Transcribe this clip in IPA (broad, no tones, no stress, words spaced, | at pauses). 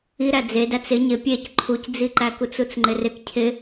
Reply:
iɾæ d͡ze dæt͡sɪ ɲɪ pʲec ǃʰucd͡ziǃækut͡s ut͡sŋ͡ǃɪrɪk cʰɪ